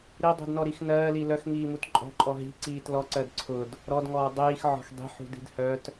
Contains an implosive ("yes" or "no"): no